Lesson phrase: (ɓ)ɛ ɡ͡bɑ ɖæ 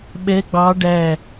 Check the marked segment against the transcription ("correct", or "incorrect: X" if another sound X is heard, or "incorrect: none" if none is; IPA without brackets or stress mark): correct